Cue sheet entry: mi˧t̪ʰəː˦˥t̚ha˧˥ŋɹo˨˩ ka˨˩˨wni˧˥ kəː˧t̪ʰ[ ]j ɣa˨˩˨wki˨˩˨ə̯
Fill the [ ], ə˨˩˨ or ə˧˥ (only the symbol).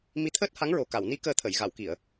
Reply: ə˨˩˨